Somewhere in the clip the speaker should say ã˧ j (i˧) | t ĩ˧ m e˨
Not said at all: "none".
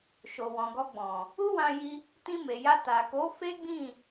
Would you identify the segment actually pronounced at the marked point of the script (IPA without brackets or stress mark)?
i˧